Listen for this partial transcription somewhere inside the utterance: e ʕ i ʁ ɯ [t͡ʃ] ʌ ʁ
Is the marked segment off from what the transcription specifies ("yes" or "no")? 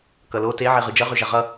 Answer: yes